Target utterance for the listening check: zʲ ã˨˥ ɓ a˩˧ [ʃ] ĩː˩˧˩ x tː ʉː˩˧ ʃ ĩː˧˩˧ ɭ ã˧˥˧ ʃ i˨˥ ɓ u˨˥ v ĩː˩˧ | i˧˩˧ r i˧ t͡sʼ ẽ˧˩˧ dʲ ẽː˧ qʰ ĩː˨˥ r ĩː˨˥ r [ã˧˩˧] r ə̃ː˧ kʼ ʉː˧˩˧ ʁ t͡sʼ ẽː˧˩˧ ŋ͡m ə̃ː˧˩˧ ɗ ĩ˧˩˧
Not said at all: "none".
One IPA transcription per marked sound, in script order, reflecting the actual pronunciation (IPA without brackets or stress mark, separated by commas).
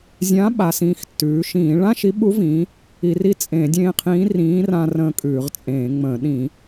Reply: s, ã˧